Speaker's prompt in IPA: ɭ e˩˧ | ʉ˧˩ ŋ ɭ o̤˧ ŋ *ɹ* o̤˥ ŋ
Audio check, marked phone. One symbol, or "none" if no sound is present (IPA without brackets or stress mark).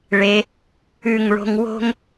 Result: w